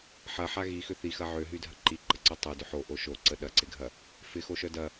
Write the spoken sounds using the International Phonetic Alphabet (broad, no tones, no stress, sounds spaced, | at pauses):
ħ ɐ ħ a ɣ i x ʏ θ i x ɐ ʕ ø ɦ y dʱ ɐ ǃ i ǃ ə ǀ œ tˤ o d ʏ ħ o ʔ o ʃ o ǀ ə ɗ ɐ ǀ ɪ ɡʱ ɐ | f ɪ x o ʃ œ d ɐ